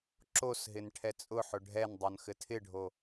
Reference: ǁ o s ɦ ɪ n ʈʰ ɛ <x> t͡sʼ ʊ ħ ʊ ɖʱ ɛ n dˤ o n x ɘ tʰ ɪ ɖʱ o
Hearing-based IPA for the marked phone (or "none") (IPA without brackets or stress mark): none